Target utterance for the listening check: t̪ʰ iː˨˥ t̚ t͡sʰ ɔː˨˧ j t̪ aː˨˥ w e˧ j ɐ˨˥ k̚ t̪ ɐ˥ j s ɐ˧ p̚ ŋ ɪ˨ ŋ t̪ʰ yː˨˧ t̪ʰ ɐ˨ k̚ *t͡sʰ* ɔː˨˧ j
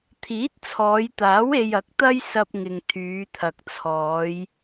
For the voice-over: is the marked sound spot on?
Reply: yes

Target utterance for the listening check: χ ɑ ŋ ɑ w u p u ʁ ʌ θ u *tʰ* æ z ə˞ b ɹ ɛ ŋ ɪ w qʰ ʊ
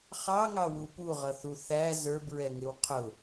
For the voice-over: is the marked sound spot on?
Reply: no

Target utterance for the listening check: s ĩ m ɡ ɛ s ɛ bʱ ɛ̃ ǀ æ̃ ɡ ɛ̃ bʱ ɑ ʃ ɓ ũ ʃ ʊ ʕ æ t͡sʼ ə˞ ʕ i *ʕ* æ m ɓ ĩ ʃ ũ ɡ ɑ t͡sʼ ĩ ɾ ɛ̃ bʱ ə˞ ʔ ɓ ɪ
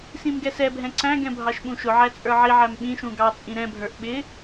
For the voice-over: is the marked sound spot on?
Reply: yes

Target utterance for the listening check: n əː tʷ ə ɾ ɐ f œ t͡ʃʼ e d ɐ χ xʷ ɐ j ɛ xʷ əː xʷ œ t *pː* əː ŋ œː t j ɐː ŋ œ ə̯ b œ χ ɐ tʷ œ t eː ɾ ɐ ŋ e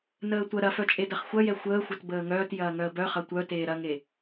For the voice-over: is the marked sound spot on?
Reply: no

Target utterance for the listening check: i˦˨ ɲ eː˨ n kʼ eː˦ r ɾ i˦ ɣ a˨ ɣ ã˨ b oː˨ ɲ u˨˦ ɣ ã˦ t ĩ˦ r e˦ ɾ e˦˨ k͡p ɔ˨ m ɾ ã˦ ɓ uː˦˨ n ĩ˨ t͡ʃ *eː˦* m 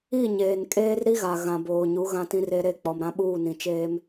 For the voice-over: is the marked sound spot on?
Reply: yes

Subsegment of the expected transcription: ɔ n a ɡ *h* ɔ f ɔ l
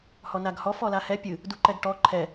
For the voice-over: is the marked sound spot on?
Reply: yes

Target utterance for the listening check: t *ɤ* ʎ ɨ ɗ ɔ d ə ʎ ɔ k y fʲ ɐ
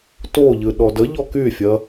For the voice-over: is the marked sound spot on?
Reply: no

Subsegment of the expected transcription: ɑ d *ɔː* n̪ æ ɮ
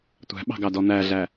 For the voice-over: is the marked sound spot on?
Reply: no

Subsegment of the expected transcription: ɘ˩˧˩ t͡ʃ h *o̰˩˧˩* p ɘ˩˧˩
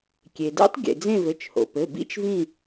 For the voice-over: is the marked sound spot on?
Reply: no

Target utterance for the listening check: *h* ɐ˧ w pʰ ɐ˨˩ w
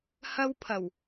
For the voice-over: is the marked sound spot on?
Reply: yes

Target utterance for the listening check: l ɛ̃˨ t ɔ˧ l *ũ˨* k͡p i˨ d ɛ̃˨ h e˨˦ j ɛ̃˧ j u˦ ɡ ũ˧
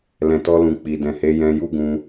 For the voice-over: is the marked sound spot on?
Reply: yes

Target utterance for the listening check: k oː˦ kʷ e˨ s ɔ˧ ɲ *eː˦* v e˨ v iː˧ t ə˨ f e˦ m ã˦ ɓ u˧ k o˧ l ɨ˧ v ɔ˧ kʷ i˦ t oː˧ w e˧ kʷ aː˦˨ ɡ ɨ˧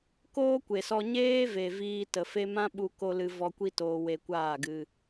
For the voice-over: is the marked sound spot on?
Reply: yes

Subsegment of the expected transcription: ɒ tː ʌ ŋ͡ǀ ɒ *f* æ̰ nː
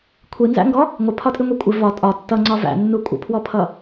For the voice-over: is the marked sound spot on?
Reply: no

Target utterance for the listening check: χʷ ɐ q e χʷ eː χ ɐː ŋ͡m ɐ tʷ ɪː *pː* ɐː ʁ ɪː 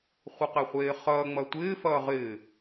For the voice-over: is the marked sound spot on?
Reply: no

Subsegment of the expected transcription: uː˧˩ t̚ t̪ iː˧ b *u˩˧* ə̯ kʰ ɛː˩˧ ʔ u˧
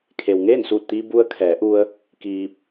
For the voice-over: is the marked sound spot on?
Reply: no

